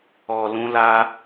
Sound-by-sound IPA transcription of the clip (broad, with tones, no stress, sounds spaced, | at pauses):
ɔ˨ l ũ˧ l a˧